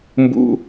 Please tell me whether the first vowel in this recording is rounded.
yes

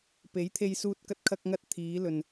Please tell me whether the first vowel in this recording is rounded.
no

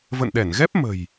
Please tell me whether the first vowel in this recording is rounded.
no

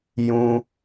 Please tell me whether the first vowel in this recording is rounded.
yes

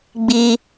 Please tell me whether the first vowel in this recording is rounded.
no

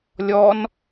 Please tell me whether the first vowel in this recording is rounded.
yes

